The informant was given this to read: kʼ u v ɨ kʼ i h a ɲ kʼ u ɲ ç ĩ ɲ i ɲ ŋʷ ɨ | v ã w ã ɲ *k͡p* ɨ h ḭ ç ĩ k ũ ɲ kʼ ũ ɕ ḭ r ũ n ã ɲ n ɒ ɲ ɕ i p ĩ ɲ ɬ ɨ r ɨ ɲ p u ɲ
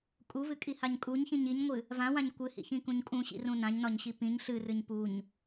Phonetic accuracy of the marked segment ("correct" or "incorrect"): incorrect